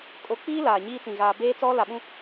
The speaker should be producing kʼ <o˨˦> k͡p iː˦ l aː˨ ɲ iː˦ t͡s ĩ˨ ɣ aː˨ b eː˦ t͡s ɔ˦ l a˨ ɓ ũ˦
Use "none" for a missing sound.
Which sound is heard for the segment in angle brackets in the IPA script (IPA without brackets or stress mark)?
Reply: o˨˦